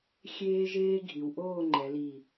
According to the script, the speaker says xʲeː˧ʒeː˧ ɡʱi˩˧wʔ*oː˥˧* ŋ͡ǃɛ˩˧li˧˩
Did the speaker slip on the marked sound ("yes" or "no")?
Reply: no